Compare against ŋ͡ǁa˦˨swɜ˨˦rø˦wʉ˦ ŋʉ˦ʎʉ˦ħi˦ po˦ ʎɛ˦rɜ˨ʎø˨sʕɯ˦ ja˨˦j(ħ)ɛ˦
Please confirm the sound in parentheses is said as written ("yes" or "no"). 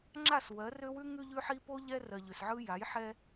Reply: yes